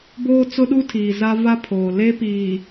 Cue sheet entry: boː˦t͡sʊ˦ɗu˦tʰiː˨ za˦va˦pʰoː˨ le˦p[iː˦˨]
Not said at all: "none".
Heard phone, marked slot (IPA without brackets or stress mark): iː˨